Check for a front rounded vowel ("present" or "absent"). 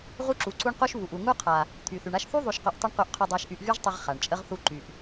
present